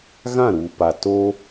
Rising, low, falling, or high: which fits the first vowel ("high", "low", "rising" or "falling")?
falling